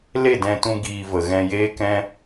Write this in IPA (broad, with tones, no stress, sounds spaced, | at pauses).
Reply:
l e˦˨ d ɛ̃˧ t ũ˧ ɡ iː˧ v ə˨ ɣ ɛ̃˧ j eː˦ k ɛ̃˦